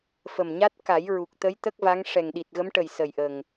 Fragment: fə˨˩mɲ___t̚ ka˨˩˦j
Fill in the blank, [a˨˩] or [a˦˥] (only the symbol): a˦˥